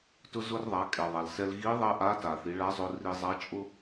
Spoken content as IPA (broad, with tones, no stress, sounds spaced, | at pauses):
t ʊ˧ z ʊ˧ r ðˤ a˩˧ kʼ ɛ˩ ðˤ a˩ l s ɛ˧ l ɣ i˧˥ ðˤ ɛ˥ ʔ a˧˥ t a˩ θ i˩˧ ɭ a˧˥ zˤ ʊ˧ r i˧ zˤ a˧˥ t͡ʃʼ ʊ˥